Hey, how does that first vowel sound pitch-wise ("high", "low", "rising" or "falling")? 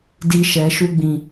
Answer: high